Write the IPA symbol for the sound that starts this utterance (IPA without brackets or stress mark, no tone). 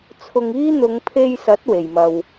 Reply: t͡sʰ